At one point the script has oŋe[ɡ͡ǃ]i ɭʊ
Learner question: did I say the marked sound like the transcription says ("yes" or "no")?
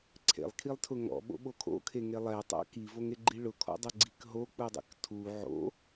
yes